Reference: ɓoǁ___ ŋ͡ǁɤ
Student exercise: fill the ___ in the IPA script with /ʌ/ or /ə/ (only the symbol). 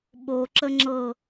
ə